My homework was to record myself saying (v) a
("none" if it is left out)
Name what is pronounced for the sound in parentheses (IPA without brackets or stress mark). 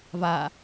v